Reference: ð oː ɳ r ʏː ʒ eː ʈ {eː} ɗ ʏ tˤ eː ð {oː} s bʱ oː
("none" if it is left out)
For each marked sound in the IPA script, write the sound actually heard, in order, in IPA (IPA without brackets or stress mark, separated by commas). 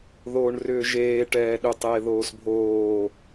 ɛː, oː